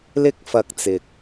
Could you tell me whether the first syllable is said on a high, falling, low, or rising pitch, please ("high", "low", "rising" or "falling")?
high